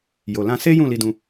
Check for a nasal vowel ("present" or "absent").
present